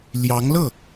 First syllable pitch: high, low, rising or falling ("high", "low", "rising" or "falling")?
rising